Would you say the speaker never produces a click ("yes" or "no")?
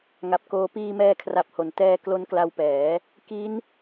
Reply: yes